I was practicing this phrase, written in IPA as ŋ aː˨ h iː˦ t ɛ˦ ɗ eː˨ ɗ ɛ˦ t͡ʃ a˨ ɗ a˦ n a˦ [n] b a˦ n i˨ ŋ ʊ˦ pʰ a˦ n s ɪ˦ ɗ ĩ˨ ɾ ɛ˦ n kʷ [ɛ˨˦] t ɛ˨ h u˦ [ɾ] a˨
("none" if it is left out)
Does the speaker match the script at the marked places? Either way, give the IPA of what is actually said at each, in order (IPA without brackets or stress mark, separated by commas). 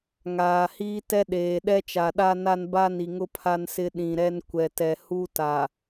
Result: n, ɛ˨, t